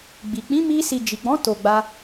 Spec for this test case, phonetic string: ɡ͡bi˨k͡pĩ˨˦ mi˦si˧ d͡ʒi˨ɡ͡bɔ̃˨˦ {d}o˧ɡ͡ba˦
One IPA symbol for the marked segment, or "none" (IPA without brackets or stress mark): t